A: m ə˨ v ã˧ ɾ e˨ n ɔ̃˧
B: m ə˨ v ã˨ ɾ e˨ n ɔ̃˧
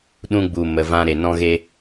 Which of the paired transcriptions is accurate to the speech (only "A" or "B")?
A